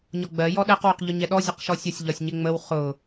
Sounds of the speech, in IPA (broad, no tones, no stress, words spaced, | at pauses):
ɲɒɡ͡bɜ jɔɗɛq wʊqʎʊɲɛɗɔ zʲəqʃɔsʲʌsʲ ʎɒsʲɲɪŋ͡məw χʊ